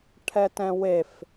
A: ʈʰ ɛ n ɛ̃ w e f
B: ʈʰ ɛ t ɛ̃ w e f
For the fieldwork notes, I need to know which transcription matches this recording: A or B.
B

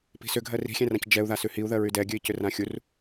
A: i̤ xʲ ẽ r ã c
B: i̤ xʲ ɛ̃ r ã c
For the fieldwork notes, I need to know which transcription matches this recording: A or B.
B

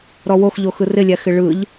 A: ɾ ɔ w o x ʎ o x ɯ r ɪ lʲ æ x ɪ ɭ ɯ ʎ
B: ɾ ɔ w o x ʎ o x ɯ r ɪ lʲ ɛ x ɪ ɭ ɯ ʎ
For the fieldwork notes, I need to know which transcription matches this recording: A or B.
A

